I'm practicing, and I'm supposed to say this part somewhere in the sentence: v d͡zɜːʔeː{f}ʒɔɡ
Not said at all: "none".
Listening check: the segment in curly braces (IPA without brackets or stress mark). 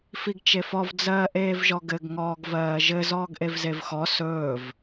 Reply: v